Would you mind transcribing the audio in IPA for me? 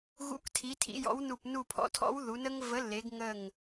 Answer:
ɣ ṵ˨˥ k tʰ i˩˧ tʰ ḭ˩˧ j ɔ̰˨˥ w n u˧˩ p n u˧˩ pʰ ɔ̰˨˥ tʰ ɔ̰˨˥ w ð u˩˧ n ə˦ ŋ v ə˨˥ lː e˩˧ ɡ ŋ ə˧˩ ŋ

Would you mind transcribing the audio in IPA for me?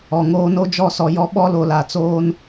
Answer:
ɔ˨ ŋ oː˦ n o˦ d͡ʒ ɔ˦˨ s ɔ˨ j ɔ˦ ɓ ɔ˦ l o˨ l a˨ t͡s oː˦ n

